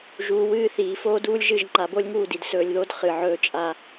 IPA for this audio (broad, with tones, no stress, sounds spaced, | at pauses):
ʒ uː˨ w ɨː˦˨ θ iː˨ f oː˦ d uː˦ lʲ ʒ ɨ˦˨ ʒ ŋ͡ǃ a˨ b o˦ lʲ ŋ uː˦˨ d i˨ d s ɵː˨ lʲ ð o˦ d χ ɨ˨ ʕ ɵː˦ t͡ʃʼ a˦